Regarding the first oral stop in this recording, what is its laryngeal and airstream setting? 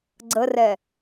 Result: click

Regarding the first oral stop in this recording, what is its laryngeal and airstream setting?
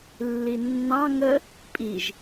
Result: ejective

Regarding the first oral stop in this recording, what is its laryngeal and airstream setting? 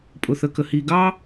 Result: ejective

